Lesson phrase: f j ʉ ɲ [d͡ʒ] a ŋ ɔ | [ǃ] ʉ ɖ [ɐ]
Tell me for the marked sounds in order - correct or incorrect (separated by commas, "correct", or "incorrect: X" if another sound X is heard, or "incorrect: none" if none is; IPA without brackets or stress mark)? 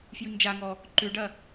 correct, correct, correct